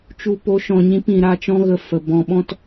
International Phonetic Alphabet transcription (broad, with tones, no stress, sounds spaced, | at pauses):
t͡ʃ u˨ p o˨˦ ʃ ɔ̃˨ ɲ ĩ˧ p ĩ˨ ɾ a˦˨ t͡ʃ ɔ̃˦ ɣ ə˧ f ə˨ b ɔ̃˨ ɓ ɔ̃˦ t